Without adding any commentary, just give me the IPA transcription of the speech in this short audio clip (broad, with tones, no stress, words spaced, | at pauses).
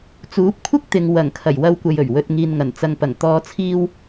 t͡suː˨˥p̚kʷʰɪ˥k̚t̪ɪ˨ŋ wɐ˨˩ŋkʰɐ˨˩j wɐ˧wkʷɐ˨jɵ˨˩ɥ wɵ˨t̚ŋiː˨n ŋɐ˨˩nt͡sɐ˨ŋpɐ˨˩ŋ t̪ɔː˨t͡sʰiː˧w